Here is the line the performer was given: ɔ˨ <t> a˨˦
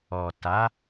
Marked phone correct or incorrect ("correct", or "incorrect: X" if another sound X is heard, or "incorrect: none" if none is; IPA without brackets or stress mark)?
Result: correct